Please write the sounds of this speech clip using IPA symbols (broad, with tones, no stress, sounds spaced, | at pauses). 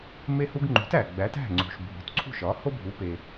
m e˧ h u˧ ɡ ŋ͡ǃ ṳ˩˥ t æ˩ ɡ͡b æ˩˥ t æ̤˥˩ ŋ͡ǀ ṳ˩ ʃ bʱ o̤˩˥ t ǀʰ ṳ˥˩ ʃ ɒ˩˥ h o˥ bʱ u˩˥ p e˩